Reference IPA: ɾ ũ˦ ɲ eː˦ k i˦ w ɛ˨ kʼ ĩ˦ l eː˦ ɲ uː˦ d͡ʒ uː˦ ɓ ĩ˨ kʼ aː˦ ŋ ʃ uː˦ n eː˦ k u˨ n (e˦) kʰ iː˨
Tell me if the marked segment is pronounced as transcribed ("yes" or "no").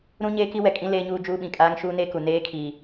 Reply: no